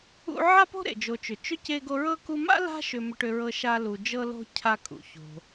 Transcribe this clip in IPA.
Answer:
ṵ˦ ʕa˦po̤˦ ɾḛ˩d͡ʒo˨t͡ʃʏ˩ t͡ʃʏ˥ ce˥ɡo˥ ɹɤ˥ku˦ ma̰˥la̤˦ ʃʏ˦mʏ˦ʈʏ˦ɹɤ˦ ʃa˥ lu˨d͡ʒɤ˥lo̤˥ cʰa˦kʼṵ˩ ço̤˨

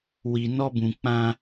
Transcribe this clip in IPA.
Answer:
wi˨ nɔ˦bũ˨ k͡pã˦

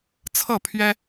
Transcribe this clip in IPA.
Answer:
t͡sʰɤ˥˨pʰɥɛ˦

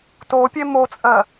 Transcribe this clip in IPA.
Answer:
topʲe mot͡sʼɜ

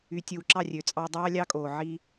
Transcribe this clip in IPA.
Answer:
y˨tʲu˨ ǁɑ˦˨rʲø˨t͡sʼɑ˧ dˤɑː˦ lʲɑ˦kʼoː˨ ʕi˧

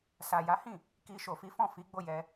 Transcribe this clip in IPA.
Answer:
sa˨ja˨˦hĩ˦˨ | ki˧ʃo˨fi˨˦fɔ̃˦˨ fi˨˦ ɡ͡bo˦˨jɛ˧

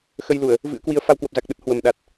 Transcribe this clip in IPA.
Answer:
xə˧jlu˧˩˨ə̯ | vɨ̰˧˥ə̯kwi˨˦ə̯ fa˧wkwə˨˩p̚za˨˩k̚ ɗə˦˥t̚ hwə˨˩mɗa˨˩t̚

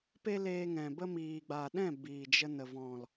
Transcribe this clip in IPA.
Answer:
pe˦leː˧ŋɛ̃˨bə˦ miː˨ɡ͡ba˨ɗɛ̃˦˨ biː˨d͡ʒə˧ nə˨vɔ̃˨l

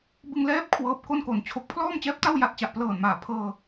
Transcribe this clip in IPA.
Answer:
bɯ˧ŋlɛː˦˥p̚ kʰwɤː˦˥p̚ko˥˩nko˨˩nt͡ɕʰo˦˥k̚ pʰlɔː˥˩mt͡ɕɛː˦˥p̚ta˥˩w ja˨˩t̚t͡ɕa˨˩ʔplɤː˨˩nmaː˨˩ pʰɤː˧

